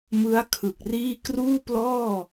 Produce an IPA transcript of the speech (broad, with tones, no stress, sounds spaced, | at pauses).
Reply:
m ɯ˦˥ a̯ kʰ ɯ˨˩ k̚ r iː˥˩ k r uː˥˩ p l ɔː˥˩